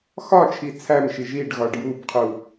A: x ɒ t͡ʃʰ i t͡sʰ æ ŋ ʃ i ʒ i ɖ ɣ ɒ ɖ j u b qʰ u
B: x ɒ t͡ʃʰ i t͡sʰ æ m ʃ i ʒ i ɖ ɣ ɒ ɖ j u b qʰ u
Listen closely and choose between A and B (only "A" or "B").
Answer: B